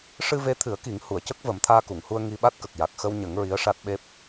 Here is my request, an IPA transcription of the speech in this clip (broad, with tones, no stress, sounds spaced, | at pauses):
ʂ ɨ˧ v e˧˥ t̪ʰ ɨ˨˩˦ ə̯ k i˨˩˦ ŋ h u˨˩˨ ə̯ c ə˦˥ k̚ v ə˨˩˦ m t̪ʰ aː˧ k u˨˩˨ ŋ h u˧ ə̯ ŋ i˧ ɓ a˦˥ t̚ k ə˨˩ k̚ j a˨˩ k̚ x ə˧ w ɲ ə˨˩˦ ŋ ɹ i˧˥ ə̯ ʂ a˦˥ t̚ ɓ e˦˥ p̚